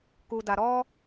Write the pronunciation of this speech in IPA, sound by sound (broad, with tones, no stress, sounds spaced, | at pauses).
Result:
k u˨ d a˨ ɾ ɔ˦